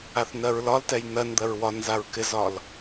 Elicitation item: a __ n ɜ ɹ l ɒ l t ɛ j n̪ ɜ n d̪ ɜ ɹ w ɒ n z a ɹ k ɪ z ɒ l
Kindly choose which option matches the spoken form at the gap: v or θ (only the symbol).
θ